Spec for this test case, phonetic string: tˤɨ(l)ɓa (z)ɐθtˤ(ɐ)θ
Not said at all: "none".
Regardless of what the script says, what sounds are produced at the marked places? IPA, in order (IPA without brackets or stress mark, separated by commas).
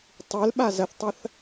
l, z, ɐ